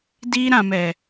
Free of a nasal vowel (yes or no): no